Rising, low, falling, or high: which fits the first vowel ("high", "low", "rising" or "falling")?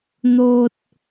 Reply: high